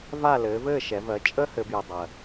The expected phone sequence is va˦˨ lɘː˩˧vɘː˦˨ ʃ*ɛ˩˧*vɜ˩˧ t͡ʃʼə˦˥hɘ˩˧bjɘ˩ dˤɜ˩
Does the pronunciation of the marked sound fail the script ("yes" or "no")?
no